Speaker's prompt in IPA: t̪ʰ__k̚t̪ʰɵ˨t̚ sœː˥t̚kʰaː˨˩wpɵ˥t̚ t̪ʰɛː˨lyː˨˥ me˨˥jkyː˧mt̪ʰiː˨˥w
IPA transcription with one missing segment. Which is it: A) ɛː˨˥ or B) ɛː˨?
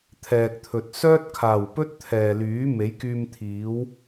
B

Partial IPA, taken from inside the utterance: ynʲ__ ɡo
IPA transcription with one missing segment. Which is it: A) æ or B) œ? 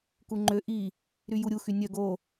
B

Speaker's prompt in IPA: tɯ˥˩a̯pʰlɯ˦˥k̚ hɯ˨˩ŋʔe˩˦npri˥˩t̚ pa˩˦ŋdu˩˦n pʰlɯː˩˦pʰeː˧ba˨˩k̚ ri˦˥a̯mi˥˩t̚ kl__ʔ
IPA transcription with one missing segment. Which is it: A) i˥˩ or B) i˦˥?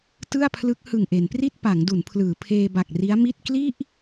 A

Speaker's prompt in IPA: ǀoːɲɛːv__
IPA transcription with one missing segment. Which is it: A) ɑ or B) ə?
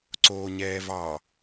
A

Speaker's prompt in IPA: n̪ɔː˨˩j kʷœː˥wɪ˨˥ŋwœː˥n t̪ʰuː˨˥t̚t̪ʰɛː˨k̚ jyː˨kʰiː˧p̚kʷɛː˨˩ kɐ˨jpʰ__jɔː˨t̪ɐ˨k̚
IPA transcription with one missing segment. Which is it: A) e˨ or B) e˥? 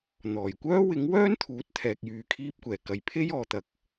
B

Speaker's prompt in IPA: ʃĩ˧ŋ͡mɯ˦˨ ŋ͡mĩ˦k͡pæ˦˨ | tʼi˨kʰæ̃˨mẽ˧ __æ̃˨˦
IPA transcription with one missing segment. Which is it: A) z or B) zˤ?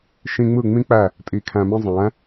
B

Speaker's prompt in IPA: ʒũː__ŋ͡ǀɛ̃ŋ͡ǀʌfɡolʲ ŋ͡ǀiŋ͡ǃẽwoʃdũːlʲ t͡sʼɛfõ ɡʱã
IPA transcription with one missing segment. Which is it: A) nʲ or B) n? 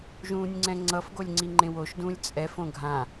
A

